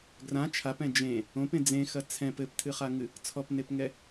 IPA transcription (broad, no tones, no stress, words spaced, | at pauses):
ɡrã t͡ʃʰapɛ̃ d͡ʒẽ | õpẽ d͡zẽxɐ t͡sʰɛ̃p ɘptʰɨχaŋɨ | t͡sʰɔpnepŋɛ